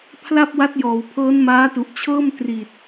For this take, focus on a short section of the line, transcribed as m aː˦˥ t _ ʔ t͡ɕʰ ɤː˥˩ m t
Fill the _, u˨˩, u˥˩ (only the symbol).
u˨˩